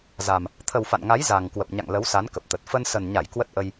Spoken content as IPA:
z a˨˩ m | t̪ʰ ə˨˩ w f a̰˧˨ n ŋ a˨˦ j z a˨˩ ŋ k w ə˨˩ p̚ ɲ a̰˧˨ ŋ l ə˨˦ w s a˨˦ n k ə˨˩ p̚ t̪ ə˨˩ t̚ f ə˧ n s ə˨˩ n ɲ a˧˩ j k w ə˦˥ t̚ ʔ ə˧ j

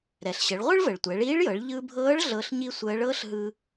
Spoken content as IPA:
ɾ ɛ˩ ɬ ɕ ə˩˧ ɭ ʁʷ ɯ˥ ɭ v ə˩ ɭ tʷ ɛ˩˧ ɭ iː˧˥ ɭ j ɤ˩˧ ɭ ʎ ɯ˧ bʱ ɤː˧˥ ɭ ɮ ɤ˧˥ ɬ ɲ i˥ sʷ əː˧˥ ɭ ɤː˥ ɬ ɦ ɯ˧

